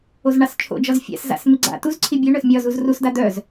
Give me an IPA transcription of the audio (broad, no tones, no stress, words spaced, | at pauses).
ozɳɑst͡ʃʰo̰d͡ʒɒz fʲa̰sza̰s miɡ͡ǀa̰tuzǀʰi bʲœɳœs mʲɒz uzrusda d̪œz